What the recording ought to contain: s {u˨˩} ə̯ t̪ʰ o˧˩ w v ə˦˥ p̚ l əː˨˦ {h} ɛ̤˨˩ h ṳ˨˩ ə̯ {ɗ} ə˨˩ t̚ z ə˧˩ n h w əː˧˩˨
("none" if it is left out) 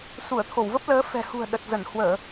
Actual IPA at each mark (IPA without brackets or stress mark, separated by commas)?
u˧˩, f, ɗ